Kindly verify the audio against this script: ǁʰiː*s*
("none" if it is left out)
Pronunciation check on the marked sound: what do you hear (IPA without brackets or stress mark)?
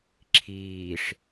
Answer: ʂ